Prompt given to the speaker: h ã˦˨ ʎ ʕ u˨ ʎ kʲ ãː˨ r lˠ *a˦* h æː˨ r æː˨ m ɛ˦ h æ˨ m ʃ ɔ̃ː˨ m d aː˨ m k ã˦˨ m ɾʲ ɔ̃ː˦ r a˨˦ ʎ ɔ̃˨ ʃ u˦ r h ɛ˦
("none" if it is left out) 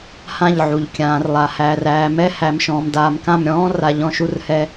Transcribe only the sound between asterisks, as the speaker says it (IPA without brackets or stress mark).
a˨